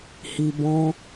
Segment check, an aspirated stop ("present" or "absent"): absent